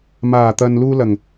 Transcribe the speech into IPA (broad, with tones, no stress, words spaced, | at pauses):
maː˨˩t̪ɐ˨n luː˧lɐ˨˩ŋ